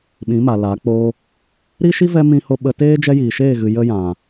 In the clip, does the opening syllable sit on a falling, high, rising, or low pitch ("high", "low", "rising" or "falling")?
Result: rising